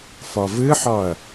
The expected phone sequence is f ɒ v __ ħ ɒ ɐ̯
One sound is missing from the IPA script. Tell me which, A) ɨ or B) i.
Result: A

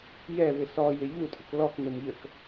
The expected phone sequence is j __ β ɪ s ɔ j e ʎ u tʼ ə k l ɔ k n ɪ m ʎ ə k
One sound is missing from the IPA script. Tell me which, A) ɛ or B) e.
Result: A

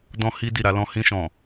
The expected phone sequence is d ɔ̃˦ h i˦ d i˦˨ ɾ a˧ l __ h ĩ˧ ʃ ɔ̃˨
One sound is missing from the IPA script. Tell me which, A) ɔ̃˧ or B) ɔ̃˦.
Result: A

